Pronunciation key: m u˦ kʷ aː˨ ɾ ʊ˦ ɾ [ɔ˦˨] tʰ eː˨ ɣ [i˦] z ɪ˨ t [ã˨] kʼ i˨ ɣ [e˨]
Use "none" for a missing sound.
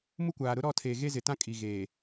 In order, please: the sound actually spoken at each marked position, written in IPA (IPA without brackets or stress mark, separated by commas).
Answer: ɔ˦˨, e˦, ã˦, eː˨